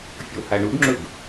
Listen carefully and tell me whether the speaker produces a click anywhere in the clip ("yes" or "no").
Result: yes